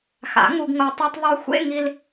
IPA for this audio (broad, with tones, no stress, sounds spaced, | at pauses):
x a̰˨˩˦ ŋ u˧ ɡ ŋ o˧ tˤ u˧ tˤ ðˤ œ˧ xʷ ḛ˧˥˧ ŋ i˧ l